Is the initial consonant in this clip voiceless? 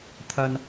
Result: yes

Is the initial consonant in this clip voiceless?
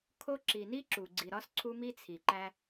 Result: yes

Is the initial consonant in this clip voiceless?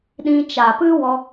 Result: no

